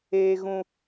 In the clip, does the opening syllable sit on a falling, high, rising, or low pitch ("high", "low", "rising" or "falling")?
high